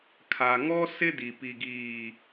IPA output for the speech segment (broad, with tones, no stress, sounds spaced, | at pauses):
kʰ a˨ ŋ ɔ˦ s ɪ˦ d i˨ p i˨ ɡ iː˨